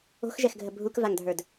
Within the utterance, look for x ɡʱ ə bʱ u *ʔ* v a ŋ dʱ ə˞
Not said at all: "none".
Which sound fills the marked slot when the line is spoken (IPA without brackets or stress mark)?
k